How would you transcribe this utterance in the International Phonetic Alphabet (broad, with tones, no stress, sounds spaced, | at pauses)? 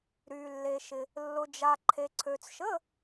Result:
ɾ yː˨ lː e˨ ʃ ɪ˨ | lː ʊ˨ d͡ʒ a˨ ǃʰ e˨ ǀʰ ø˨ t͡s ʃ ə˧˥˧